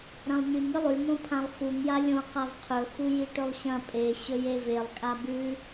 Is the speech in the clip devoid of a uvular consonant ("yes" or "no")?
no